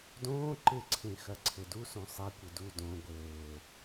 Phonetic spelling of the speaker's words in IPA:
d õː ǃ ɪ ǀʰ ẽ x ɐ ǀʰ ɘ d u s õ sˤ e kʷ ɘ d u d õ ɡʷ ɘː

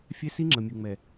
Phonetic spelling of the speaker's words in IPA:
fʲ ɛ˦ s i˦ ŋ͡ǁ ə˨ mʲ u˨ ŋ͡m ɛ˨

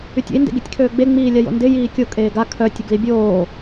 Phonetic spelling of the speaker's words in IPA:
y tʲ ə̰ i̯ n d ḛ ɡ i tʲ kʰ øː ɡ͡b e ŋ͡m iː lʲ a j o̰ n d ɪ j iː kʲ o kʼ eː ɡ a kʰ œ tʲ ʊ ɡ l i bʲ oː

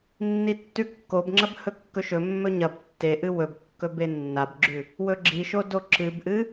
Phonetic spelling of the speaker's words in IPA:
nː i tː ʉ kː o b ŋ͡ǁ ɐ b h ɵ kː ɵ ʃ ɵ mː ɵ ɲ ɐ b tː e ʔ ɨ w ɵ b kː ɵ b e nː a b ɡ͡ǁ ʉ | w ɵ ɡ͡ǁ i ʃ o d o ǁ ɨ b ʔ ɨ

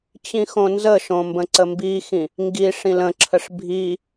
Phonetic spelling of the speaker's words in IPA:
t͡ɕ ĩ x õ n z ə ʃ õ m b ə̃ ǀ ə m b i x ĩ | ŋ ɡ i ʂ ĩ l ə̃ ǁʰ ə ʂ bʱ i

